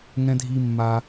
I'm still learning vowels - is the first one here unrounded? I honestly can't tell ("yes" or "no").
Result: yes